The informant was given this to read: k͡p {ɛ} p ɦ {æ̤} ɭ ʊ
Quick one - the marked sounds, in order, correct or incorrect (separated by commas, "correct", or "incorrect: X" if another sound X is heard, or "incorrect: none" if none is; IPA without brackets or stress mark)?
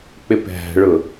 incorrect: ɪ, correct